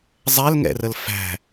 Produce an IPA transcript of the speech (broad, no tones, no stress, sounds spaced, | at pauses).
zˤ ɛ l ŋ ɛ̰ r ə l f æ̤